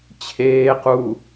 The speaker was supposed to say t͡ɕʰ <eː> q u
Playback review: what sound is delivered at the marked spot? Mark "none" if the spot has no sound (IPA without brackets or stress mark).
eː